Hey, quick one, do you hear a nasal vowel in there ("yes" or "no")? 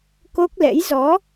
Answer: no